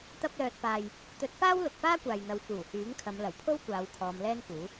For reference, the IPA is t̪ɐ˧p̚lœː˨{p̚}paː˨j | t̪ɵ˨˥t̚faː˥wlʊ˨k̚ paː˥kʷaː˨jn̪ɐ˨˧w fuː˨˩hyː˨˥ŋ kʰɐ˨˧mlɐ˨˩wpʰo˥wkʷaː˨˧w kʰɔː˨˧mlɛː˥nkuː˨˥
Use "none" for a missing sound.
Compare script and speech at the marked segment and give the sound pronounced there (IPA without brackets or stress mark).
t̚